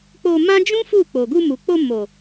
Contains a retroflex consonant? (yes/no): no